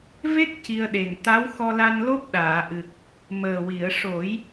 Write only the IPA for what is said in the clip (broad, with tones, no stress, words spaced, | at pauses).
ve˦˥k̚ ci˧ə̯ɗe˨˩ŋ t̪a˧˥wxɔ˧la˧n lo˦˥p̚ ɗaː˨˩˨ʔɨ˨˩k̚ | məː˨˩wi˨˩˨ə̯ʂo˨˩˦j